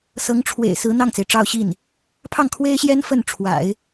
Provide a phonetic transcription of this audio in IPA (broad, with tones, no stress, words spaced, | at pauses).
sɤ˧˥ŋʈ͡ʂʰwḛ˨˩ɪ̯ sɹ̩˧˥n̪ɑ˥˩ŋt͡se˩ɪ̯ ʈ͡ʂɑ˥˧ʊ̯ɕi˥˩n | pʰɑ˥˩ŋkʰwe˥ɪ̯ɕjɛ˥n fə˥˩nʈ͡ʂʰwa̰˨˩˦ɪ̯